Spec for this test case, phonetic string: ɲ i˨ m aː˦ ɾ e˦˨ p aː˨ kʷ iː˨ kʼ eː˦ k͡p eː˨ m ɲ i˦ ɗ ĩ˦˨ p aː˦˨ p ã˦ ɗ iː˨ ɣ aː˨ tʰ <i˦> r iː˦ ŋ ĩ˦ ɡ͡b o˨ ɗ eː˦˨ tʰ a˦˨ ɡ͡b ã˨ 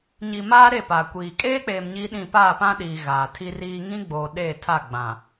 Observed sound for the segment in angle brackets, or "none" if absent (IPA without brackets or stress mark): i˦